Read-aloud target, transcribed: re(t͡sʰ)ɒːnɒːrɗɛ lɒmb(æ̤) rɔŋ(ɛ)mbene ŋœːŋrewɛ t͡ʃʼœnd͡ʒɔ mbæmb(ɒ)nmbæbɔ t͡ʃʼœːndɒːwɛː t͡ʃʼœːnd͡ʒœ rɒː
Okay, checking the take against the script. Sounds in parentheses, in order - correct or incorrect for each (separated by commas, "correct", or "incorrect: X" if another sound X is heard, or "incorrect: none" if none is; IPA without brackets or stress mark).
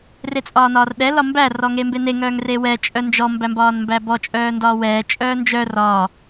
incorrect: t͡sʼ, incorrect: æ, incorrect: e, incorrect: ɒː